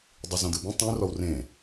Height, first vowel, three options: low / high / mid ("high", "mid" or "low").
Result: high